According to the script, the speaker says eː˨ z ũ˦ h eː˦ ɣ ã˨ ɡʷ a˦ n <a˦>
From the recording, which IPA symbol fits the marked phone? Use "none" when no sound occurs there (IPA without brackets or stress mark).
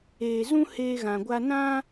ã˦